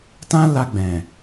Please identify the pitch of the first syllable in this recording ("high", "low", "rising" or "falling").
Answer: high